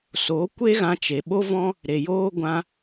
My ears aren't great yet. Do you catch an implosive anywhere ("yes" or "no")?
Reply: yes